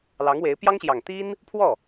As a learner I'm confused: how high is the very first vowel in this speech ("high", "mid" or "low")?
low